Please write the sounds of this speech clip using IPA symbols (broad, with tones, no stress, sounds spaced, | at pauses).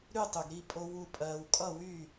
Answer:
ɾ y˥˨ tˤ y˨ ɡ ɾ i˥˨ pʼ o˦ w u˥˨ pʼ ɜː˦ w kʼ ʌ˥˨ w y˥˨